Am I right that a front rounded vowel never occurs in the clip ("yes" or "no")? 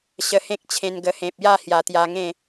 yes